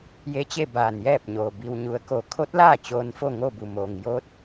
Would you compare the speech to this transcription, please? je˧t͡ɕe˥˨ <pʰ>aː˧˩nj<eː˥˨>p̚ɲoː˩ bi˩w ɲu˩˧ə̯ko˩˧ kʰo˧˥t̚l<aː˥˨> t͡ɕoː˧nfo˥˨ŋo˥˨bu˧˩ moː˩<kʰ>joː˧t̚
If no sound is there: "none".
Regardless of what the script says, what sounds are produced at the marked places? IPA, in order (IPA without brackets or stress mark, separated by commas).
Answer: b, ɛː˥˨, aː˥˨, ŋ